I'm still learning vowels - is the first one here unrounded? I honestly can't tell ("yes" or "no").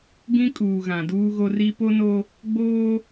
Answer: yes